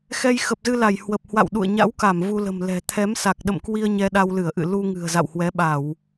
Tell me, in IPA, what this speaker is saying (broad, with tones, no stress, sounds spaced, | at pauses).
x ɛ˧ j x ə˨˩ p̚ z ɨ˧ l a˧˩ j h w ə˨˩ p̚ h w a̰˧˨ w ɗ ṵ˧˨ ə̯ ɲ a̰˧˥ w k a˧˩ m v u˧ l ə̤˨˩ m l ɛ̤˨˩ t̪ʰ ɛ˨˦ m s a˨˩ k̚ ɗ ə̰˧˨ m k w i˧ ə̯ ɲ ɛ˧ ɗ a˧ w l ɨ˧˩ ə̯ ʔ ɨ̰˧˨ l u˧ ŋ ɨ̤˨˩ ə̯ z a̰˧˨ w h w ɛ˨˦ ɓ a˧˩˨ w